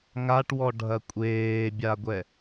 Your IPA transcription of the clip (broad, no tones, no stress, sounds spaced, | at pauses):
ŋ a ʈ w ɔ ɖʱ ɐ kʷʼ eː bʲ a ɡʷ ɛ